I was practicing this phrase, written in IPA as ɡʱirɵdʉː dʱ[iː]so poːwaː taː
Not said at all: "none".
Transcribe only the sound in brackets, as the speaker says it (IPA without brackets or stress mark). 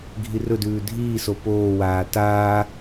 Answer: iː